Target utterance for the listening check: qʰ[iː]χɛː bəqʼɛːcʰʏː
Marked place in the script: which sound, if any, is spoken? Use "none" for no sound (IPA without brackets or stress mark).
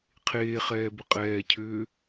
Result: eː